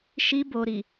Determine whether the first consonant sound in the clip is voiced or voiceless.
voiceless